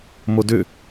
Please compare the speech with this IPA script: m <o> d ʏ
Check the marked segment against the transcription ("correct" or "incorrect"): correct